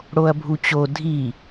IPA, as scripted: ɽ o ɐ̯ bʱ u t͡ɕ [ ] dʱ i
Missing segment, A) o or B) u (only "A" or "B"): A